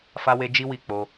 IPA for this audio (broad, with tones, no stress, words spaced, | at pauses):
fa˦we˦ d͡ʒi˦wi˦˨ k͡po˧